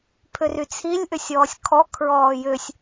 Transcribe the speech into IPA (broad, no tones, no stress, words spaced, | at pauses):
pʰʏryt͡sʰilʲʔʏ sʲɔːsʲkʰɔ kʰɹɔːjʏsʲ